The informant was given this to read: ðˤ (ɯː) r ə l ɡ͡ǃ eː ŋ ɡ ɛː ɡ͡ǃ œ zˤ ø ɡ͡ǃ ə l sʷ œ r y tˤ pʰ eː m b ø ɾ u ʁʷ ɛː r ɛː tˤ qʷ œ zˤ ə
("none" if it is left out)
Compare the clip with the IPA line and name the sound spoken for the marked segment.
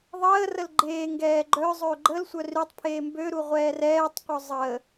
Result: əː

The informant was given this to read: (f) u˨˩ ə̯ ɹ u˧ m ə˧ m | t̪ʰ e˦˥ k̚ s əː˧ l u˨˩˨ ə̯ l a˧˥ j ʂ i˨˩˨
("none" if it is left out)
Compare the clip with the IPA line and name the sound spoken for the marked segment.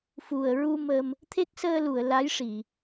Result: f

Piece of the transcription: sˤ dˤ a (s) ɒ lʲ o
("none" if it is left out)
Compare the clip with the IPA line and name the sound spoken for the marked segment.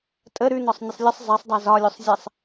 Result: z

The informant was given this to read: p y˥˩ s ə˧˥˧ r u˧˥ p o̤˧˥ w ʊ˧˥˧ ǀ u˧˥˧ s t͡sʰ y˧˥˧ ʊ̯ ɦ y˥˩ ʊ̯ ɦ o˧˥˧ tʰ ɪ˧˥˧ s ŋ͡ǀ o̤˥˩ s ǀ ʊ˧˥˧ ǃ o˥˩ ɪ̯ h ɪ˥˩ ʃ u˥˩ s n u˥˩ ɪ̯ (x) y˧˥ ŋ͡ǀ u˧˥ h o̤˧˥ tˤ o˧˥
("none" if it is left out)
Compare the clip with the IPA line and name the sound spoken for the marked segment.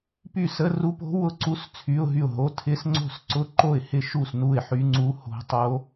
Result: ħ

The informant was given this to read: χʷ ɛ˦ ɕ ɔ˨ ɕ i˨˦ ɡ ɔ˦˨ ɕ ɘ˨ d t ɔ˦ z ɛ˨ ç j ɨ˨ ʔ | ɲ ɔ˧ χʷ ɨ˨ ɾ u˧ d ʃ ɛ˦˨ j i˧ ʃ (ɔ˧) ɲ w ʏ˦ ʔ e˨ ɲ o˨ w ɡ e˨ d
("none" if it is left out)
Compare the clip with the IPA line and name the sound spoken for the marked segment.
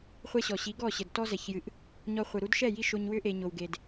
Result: o˧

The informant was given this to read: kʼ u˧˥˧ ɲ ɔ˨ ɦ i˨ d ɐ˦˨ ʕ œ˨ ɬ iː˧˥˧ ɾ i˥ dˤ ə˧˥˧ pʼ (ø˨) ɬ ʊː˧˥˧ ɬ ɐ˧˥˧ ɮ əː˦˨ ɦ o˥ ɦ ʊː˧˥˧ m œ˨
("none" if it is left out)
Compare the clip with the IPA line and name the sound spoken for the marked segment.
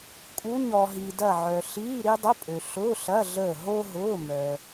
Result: ø˨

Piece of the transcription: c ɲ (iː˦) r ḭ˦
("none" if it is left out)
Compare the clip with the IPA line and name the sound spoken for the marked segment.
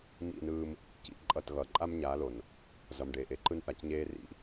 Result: eː˦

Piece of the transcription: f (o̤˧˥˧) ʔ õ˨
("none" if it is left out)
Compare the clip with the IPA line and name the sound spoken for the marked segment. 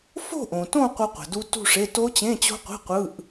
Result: o̤˥˧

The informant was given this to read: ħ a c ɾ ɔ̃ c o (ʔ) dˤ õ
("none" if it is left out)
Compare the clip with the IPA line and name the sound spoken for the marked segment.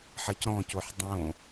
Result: ħ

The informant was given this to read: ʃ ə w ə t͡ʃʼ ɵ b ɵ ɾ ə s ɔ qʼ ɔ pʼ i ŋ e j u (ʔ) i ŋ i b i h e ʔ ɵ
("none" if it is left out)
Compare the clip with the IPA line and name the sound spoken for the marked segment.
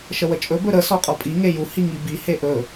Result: h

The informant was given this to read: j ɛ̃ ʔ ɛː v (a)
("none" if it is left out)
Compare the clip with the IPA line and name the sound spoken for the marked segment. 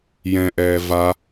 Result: a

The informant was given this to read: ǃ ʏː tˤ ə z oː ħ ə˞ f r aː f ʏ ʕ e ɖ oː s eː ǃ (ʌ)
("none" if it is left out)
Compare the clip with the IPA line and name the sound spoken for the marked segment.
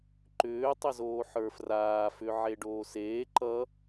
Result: ʌ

